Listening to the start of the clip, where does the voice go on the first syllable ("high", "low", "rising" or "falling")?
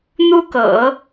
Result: high